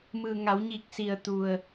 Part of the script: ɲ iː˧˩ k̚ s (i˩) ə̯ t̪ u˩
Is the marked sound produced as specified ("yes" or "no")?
yes